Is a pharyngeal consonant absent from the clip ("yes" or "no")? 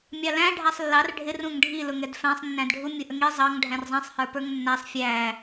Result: yes